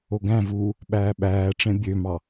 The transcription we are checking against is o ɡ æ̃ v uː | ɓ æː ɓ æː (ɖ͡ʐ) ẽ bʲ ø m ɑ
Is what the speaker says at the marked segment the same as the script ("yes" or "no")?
no